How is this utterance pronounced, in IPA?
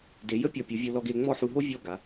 d e˩˧ j ə˥ pʲ ɔ˧˩ pʲ u˩˧ vʲ o˧ l ɔ˧ ɡ e˧ ŋ͡m ɔ˥˧ ħ u˧ ɦ o˥ vʲ ɔ˥˧ ɡ a˩˧

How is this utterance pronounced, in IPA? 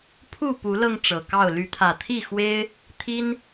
pʰ u˥˨ p u˨˦ l ɤ˧ ŋ ʈ͡ʂ ɤ˨˩ k ɑ˥˨ ʊ̯ l y˨˦ t̪ʰ ä˨˩ t̪ʰ i˥˨ x w e˦ ɪ̯ | t̪ʰ i˦ n

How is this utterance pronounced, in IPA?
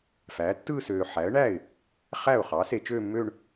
f æː˩˥ tː ɯː˥˧ s øː˨ ħ æ˩˥ ə̯ ɳ æː˥˩ ɪ̯ | χ æ˥˩ ʊ̯ χ ɑ˩˥ s e˨ t͡ʃ øː˥˧ mː øː˥˧ ɳ

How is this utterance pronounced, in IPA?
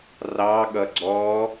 r ɑ ɠ ʌ ɡ͡ǀ ɔ

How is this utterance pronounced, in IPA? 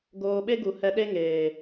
ɡ oː˧ ɓ e˦ ɡ u˨ h ɛ˧ ɗ e˦ ŋ eː˨

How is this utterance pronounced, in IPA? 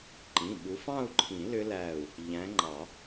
ǃ ĩ˩˧˩ ɓ u˨˦ f ɑ̃˥˧ u̯ ǃʰ ĩ˨˩˦ l ʏ˦˥ l æ˧˩ u̯ | ʎ æ̃˨˦ ŋ͡ǃ ɑ˨˩˦

